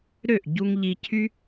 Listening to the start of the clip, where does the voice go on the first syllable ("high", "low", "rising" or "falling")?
falling